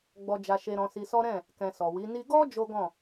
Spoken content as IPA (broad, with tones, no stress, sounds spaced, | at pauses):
ɡ͡b ɔ˧ d͡ʒ a˧ ʃ e˧ ɾ ɔ̃˧ s i˧ s ɔ˦ ɾ ɛ̃˦˨ | k ɛ̃˨ s ɔ˨ w i˨˦ n i˦ ɡ ɔ˦ d͡ʒ o˦ ɡ ɔ̃˦˨